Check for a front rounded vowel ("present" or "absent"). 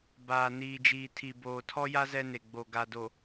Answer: absent